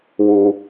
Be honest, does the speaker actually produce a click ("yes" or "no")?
no